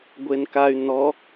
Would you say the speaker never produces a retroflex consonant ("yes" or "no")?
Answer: yes